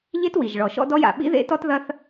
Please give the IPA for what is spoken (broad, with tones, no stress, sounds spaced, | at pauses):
ʎ e˥ t w i˩ ʒ ɭ ɔ˩ ʃ ɔ̰˥ d ɔ˥ j a̰˩ ɓ ḭ˥ ð ḛ˥ t ɔ˥ t ð ɐ˥ θ